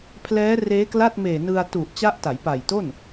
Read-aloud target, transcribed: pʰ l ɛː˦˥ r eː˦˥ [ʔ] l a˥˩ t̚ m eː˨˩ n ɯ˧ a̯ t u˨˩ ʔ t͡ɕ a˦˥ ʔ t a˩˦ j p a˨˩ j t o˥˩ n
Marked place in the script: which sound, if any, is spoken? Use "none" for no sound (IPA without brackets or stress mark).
k